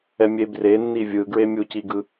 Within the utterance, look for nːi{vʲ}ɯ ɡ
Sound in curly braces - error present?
no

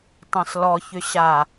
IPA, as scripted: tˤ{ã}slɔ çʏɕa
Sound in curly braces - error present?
no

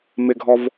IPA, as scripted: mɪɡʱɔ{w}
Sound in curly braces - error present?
yes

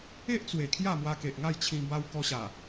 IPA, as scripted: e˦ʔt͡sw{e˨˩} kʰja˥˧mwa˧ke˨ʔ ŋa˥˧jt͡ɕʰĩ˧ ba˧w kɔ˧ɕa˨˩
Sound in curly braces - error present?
no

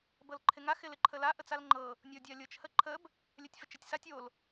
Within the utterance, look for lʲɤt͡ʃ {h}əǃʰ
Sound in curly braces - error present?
no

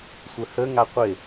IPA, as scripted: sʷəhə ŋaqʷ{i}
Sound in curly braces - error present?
yes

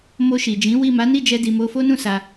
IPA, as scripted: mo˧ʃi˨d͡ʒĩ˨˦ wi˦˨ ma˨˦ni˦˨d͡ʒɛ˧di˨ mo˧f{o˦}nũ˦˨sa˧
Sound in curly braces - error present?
no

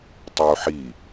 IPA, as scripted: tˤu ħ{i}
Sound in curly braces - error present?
no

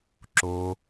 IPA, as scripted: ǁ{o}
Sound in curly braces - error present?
no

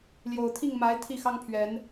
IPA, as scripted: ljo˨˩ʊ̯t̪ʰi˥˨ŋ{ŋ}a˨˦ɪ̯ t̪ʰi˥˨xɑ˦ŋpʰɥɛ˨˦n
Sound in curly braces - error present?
yes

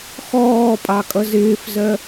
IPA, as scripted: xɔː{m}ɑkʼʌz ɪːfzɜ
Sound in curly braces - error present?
yes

